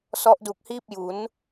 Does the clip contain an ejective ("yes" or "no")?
no